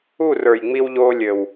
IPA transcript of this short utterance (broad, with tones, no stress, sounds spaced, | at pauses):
u˦˨ r ə˞˨ j ŋ͡m i˦ w ʎ oː˦ lʲ ɘ˨ w